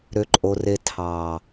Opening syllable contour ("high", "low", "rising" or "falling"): high